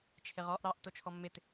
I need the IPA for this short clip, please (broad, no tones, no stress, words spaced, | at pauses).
t͡ʃʰɪʁɔʔ ɾɑʔ tot͡ʃʰɔmːɪt